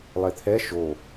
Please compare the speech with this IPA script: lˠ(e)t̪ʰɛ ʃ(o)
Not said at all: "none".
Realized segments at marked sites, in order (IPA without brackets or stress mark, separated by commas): e, o